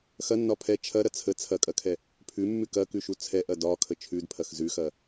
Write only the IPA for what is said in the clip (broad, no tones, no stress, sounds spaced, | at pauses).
x ɐ nː ɒ pʰ ɛ t͡ʃʰ ɐ ɾ ɐ t͡sʰ ə t͡sʰ ɐ kʼ ɐ kʰ ɛ | pʰ ʉ mː ʉ k ɐ k ʉ ʃ u t͡sʰ ɛ ʔ ɐ d ɒ kʰ ə t͡ʃʰ ʉ d pʰ ɐ x z ʉ x ɐ